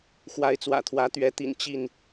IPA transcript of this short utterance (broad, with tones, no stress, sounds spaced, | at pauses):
x w a˨˦ ɪ̯ t͡s w ä̰˨˩ t̪ʰ w ä˨˦ t̪ ɥ ɛ˨˦ t̪ ḭ˨˩ n t͡ɕ i˥˨ n